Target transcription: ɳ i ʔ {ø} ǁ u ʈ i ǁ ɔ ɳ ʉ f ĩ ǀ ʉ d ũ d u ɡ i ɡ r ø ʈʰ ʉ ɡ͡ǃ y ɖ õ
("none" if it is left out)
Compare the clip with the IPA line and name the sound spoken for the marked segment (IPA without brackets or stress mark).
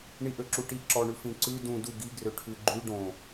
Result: ø